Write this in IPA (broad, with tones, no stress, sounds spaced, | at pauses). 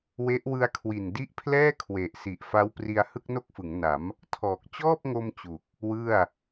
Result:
w e˦˥ ʔ w ɯ˧ a̯ kʰ w i˨˩ n d i˦˥ ʔ pʰ l ɛː˥˩ kʰ w e˨˩ ʔ s i˨˩ ʔ f a˦˥ w p r i˧ a̯ h ɯ˥˩ k̚ n o˥˩ k̚ f ɯ˩˦ ŋ n a˩˦ m | tʰ ɔː˨˩ k̚ t͡ɕ ɔː˥˩ p̚ ŋ o˧ m t͡ɕ u˨˩ k̚ | w ɯ˥˩ a̯